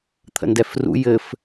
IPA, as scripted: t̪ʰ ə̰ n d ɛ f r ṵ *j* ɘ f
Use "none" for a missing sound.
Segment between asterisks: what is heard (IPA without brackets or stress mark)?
j